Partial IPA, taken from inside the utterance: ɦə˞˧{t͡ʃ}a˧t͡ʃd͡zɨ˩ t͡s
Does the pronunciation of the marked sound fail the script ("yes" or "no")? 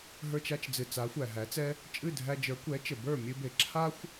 no